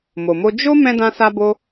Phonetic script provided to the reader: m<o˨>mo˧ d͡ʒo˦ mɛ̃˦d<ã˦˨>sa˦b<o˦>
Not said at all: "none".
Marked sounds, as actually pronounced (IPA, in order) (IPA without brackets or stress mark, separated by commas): o˨, ã˦, o˦